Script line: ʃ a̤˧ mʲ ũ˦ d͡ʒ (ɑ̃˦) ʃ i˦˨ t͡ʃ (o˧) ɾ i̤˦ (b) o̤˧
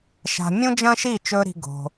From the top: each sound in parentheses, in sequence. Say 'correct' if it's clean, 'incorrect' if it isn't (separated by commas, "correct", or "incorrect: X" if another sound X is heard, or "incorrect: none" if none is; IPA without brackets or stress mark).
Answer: incorrect: ɐ̃˦, incorrect: ɵ˧, incorrect: ɡ